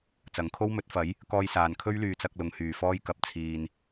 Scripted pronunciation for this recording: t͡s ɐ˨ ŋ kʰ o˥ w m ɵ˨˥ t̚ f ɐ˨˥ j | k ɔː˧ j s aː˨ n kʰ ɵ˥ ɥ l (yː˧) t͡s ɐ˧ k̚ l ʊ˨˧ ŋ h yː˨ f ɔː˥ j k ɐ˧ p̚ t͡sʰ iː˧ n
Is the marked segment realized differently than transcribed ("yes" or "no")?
no